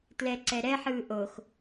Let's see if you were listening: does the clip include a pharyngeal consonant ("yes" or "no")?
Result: yes